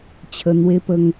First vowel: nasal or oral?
oral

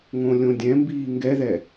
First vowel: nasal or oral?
nasal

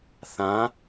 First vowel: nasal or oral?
nasal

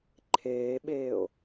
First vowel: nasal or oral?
oral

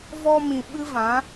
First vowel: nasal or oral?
oral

